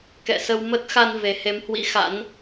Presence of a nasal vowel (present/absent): absent